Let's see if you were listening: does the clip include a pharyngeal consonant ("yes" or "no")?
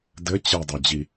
no